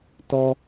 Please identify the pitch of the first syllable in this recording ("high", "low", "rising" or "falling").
high